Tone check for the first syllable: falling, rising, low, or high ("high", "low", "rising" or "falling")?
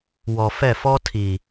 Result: low